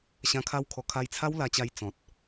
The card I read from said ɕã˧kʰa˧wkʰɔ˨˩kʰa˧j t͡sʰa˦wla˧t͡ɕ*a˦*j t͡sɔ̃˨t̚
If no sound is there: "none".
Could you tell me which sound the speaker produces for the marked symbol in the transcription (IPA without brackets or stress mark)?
a˧